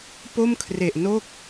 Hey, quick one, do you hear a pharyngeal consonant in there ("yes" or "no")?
no